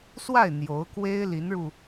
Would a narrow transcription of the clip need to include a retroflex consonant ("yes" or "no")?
yes